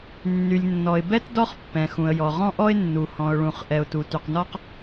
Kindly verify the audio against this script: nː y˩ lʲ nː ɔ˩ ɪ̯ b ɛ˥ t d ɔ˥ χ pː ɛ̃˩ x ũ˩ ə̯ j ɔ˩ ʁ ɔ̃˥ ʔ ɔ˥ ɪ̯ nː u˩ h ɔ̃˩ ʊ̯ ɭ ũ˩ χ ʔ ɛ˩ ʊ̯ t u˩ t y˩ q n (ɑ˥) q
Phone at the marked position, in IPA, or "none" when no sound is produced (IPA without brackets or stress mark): ɔ˥